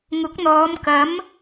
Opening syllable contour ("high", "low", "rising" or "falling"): rising